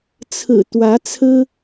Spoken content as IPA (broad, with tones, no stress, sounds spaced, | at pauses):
t͡sʰ ɹ̩˨˩ t̪ w ä˧˥ t͡sʰ ɹ̩˥